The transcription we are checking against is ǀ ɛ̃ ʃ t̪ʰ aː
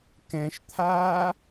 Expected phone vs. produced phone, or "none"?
ǀ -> k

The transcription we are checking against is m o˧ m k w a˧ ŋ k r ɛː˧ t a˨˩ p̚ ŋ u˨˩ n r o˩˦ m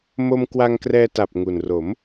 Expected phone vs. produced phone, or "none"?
none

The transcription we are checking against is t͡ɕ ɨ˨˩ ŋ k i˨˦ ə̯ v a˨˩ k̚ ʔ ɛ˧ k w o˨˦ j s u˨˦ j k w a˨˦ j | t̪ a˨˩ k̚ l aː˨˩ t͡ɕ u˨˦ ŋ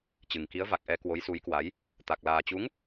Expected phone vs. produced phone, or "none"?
none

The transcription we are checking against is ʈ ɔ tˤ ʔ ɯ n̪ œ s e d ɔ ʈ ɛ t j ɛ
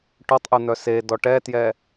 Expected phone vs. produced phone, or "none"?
none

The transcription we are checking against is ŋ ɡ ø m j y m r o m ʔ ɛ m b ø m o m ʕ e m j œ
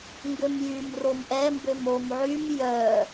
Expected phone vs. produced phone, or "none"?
e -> y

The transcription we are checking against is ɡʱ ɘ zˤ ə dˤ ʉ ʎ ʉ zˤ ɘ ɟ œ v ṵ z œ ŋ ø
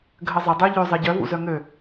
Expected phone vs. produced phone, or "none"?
none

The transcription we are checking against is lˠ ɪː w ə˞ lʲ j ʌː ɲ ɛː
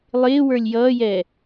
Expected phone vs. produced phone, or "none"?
ɲ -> j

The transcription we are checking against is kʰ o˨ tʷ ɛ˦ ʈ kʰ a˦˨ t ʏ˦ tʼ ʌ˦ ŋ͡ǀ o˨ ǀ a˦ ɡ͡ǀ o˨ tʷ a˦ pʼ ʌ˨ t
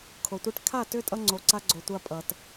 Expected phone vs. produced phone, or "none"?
none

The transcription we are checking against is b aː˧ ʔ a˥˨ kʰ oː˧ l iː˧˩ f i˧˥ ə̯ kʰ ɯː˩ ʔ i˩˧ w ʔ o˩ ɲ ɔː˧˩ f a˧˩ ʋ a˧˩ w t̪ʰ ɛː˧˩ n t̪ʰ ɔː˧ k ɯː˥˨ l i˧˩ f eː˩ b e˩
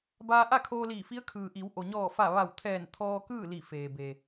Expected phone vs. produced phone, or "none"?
none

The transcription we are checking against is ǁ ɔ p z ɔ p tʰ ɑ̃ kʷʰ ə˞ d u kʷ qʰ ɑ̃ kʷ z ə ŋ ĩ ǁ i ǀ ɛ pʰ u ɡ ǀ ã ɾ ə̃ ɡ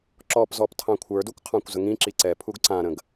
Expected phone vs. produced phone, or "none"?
none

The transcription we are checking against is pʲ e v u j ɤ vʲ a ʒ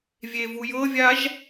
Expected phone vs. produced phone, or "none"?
pʲ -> vʲ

